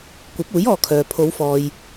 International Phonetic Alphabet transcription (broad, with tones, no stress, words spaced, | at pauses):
kʷɐ˨˥p̚uː˨˥j ɔː˨kʰœː˨ pʰo˨˧wfɔː˨j